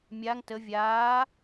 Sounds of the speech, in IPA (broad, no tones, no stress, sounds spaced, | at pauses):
mʲ aː ŋ t ə vʲ aː